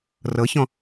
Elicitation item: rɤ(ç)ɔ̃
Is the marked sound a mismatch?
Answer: no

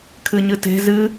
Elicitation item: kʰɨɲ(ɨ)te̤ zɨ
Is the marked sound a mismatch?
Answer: no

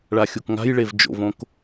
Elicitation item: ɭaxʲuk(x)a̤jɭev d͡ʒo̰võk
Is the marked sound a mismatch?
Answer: yes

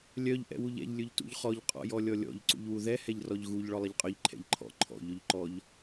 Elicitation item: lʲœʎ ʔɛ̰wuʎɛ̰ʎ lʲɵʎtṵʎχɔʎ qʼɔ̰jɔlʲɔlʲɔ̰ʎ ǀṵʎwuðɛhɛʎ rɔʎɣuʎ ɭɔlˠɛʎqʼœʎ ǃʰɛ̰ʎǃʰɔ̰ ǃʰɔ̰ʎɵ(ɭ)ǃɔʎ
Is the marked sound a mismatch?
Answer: yes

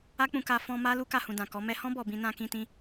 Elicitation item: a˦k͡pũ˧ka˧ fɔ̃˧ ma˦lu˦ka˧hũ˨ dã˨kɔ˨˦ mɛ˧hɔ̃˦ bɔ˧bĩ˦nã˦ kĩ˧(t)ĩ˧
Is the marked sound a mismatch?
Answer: no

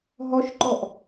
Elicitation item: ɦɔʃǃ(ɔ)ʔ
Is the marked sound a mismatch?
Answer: no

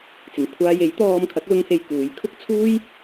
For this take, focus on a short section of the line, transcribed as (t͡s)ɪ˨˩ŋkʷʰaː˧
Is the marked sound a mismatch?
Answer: no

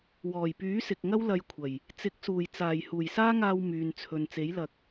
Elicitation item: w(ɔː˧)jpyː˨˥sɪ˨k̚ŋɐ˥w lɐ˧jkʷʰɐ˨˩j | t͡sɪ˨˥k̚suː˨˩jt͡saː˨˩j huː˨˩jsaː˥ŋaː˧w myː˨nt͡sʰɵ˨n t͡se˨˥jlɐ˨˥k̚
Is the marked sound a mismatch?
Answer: yes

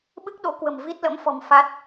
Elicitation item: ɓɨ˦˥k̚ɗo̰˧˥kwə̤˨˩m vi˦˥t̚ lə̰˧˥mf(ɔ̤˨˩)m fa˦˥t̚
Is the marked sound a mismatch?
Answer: no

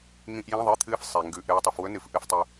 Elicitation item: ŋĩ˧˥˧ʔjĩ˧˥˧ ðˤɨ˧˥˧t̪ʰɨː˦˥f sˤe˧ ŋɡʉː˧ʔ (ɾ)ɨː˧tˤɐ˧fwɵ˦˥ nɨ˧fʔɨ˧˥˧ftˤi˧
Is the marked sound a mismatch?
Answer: no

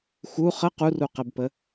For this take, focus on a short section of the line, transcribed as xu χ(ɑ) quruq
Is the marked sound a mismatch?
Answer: yes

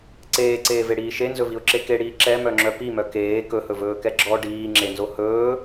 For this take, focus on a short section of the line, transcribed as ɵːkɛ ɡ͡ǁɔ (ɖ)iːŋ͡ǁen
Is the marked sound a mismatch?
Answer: no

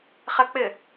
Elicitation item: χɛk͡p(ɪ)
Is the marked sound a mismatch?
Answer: no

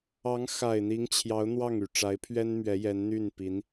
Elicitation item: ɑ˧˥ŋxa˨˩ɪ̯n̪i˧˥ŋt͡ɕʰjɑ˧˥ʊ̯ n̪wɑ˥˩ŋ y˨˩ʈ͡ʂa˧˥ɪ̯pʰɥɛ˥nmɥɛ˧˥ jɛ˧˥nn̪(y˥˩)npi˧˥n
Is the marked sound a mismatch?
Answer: no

